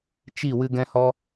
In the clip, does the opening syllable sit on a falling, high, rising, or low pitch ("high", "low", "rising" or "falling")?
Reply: falling